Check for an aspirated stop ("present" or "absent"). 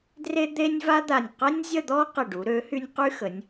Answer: absent